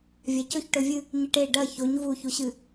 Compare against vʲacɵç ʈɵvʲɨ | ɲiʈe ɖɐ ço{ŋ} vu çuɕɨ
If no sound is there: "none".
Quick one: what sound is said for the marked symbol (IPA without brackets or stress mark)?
ɲ